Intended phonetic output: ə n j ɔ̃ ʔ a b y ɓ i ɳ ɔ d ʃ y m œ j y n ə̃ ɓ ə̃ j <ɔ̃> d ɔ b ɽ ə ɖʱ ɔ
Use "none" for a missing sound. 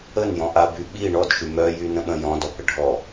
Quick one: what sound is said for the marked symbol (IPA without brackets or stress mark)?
ɔ̃